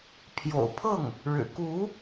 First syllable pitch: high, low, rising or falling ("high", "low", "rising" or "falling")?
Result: low